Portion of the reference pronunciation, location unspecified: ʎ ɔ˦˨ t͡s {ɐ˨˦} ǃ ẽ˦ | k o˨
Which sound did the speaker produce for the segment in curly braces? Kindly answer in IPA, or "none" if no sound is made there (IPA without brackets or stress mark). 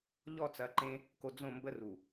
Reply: ɐ˨˦